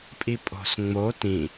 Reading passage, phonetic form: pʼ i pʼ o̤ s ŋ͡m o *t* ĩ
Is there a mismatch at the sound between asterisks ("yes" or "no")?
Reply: no